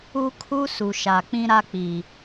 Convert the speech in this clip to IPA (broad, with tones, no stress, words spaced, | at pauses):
u˦kʰu˦ su˨ʃa˨k͡pĩ˦ ɾa˦k͡pi˨